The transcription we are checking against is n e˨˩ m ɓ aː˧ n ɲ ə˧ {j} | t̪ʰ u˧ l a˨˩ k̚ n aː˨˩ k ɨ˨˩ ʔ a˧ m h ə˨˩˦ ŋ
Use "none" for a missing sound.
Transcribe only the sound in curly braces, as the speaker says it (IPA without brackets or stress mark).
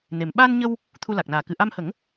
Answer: w